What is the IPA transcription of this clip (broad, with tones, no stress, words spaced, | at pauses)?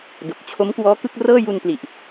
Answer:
do˨˩k̚t͡ɕʰo˦˥m kwɔː˦˥kɯ˥˩k̚rɤː˥˩ ju˧npli˨˩ʔ